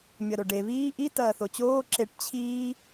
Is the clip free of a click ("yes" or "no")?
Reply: no